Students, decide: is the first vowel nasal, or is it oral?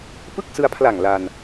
oral